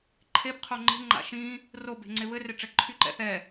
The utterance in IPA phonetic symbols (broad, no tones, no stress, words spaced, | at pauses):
ǃʰebqʰo ŋ͡ǃe̤ ŋ͡ǃa̰ʃĩ | ro be̤ŋ͡ǀeβɘre ʈ͡ʂɛǃʰy ǃɛ̰θɛ